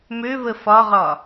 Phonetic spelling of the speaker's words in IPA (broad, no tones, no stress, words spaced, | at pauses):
møvə fɒʁɒ